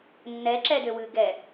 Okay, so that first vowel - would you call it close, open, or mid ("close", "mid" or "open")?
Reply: mid